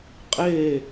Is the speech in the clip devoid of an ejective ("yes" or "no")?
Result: no